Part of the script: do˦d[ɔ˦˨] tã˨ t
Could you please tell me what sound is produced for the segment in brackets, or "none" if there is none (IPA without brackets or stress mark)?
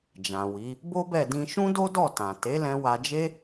ɔ˦˨